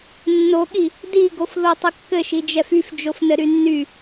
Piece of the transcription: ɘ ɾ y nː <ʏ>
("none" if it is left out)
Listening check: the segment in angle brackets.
y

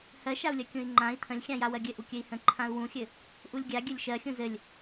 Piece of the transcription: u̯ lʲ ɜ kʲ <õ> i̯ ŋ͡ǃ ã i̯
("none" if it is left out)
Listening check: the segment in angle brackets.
ũ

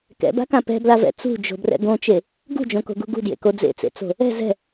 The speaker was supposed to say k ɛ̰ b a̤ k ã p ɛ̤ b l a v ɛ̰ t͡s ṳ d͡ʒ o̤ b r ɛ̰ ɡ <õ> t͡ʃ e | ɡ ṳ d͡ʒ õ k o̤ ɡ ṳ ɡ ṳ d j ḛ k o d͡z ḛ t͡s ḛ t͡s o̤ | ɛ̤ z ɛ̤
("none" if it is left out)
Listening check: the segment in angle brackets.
õ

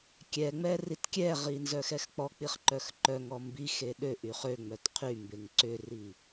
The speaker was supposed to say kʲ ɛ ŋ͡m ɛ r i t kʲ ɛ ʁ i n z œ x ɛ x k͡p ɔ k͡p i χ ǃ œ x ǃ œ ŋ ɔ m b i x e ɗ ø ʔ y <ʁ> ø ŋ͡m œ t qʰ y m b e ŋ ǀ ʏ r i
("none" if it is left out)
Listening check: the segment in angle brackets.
χ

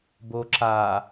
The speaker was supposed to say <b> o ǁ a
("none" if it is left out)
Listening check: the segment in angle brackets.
b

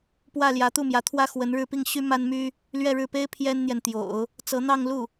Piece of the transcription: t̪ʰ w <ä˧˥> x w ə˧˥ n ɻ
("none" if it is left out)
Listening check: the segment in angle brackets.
ä˥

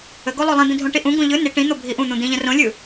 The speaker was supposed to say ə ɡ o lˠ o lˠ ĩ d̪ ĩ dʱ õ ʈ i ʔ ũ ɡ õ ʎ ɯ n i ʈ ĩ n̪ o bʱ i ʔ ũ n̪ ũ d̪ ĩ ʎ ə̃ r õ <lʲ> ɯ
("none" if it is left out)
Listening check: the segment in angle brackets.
lʲ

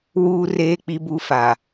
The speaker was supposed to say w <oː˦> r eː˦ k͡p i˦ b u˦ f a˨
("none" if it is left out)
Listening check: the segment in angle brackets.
uː˦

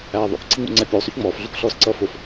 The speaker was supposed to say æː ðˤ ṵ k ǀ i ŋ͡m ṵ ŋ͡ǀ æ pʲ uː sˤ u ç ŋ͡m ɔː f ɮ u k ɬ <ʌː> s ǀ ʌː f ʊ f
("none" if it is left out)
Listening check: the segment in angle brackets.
ɔː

